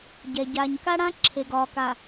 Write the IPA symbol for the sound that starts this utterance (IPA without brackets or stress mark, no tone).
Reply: ɟ